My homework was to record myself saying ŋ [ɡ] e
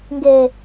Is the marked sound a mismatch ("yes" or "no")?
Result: no